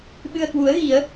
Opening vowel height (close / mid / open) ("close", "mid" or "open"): close